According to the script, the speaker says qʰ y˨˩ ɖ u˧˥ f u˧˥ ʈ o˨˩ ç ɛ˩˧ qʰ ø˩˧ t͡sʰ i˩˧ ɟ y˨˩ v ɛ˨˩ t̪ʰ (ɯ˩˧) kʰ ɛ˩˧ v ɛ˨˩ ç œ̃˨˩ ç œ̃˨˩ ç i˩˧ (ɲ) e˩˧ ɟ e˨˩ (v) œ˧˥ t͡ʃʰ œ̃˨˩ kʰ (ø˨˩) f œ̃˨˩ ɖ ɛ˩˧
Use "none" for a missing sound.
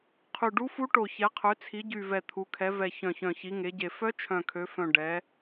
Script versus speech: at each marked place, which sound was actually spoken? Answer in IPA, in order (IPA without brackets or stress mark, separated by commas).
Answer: u˩˧, ŋ, f, ø˩˧